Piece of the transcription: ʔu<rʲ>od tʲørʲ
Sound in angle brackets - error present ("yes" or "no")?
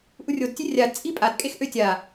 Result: no